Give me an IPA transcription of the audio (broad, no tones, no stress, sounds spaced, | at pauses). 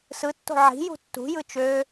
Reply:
s ɯ tː o̤ ʕ i̤ j ṳ tː ṳ j ɯ t͡ʃ ø